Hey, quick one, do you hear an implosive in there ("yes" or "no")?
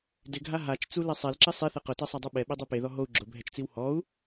yes